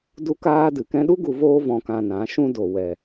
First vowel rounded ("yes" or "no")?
yes